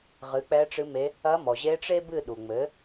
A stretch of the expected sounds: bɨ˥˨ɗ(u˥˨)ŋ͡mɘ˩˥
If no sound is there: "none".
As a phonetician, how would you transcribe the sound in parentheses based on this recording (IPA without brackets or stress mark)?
u˩